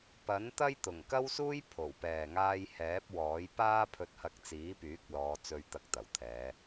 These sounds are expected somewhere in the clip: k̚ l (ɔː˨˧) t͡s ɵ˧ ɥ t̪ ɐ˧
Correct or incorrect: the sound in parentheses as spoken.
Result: correct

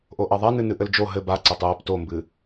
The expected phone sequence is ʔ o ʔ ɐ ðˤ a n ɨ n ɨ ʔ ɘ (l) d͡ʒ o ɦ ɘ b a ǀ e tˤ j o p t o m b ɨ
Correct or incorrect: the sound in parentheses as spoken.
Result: correct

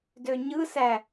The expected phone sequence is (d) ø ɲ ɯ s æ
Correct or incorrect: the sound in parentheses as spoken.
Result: correct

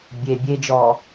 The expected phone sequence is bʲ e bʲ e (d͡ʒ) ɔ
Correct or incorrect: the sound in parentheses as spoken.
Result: correct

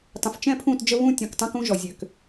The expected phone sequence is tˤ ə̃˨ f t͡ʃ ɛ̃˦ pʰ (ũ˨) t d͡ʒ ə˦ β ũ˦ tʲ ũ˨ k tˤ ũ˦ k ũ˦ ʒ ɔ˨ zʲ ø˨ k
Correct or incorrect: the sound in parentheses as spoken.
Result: incorrect: ũ˦˨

